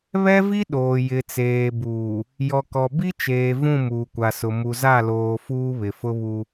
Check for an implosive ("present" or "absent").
present